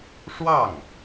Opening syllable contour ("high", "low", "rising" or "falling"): falling